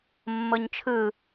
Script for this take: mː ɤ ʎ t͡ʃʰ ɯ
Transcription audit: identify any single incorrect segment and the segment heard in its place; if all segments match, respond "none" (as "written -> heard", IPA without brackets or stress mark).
ʎ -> ɲ